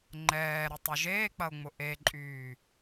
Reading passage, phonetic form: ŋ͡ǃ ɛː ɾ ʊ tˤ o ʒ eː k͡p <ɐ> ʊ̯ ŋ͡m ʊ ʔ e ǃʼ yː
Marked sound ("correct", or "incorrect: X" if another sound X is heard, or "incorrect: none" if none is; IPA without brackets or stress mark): correct